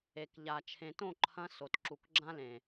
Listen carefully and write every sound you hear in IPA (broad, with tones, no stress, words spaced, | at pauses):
e˨kʎa˨ t͡ʃʰẽ˨tõ˦˨ǃʰɐ̃˧ so˨tǁu˨kɡ͡ǁã˦lẽ˨